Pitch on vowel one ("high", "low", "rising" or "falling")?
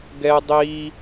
high